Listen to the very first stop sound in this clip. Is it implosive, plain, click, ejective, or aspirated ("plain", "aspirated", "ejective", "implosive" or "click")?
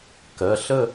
plain